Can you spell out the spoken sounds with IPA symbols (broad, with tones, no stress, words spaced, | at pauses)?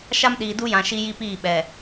ʃa˦mɗiː˨du˦jã˨ ʃi˦ji˦piː˦˨ ɓɛ˨